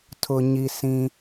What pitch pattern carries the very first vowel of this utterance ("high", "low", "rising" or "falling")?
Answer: low